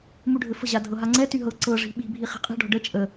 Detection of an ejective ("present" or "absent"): present